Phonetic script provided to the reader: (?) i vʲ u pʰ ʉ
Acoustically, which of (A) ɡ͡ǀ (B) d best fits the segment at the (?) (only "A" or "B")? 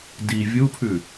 B